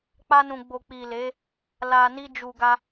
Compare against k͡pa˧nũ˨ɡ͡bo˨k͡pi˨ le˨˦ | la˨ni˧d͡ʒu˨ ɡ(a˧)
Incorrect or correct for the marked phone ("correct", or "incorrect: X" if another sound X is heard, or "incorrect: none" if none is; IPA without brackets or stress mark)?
correct